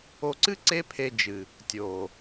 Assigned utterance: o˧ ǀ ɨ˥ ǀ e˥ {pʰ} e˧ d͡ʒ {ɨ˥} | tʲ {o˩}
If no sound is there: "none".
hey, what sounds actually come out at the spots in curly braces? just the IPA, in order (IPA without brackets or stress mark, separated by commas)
pʰ, ɨ˩, o˩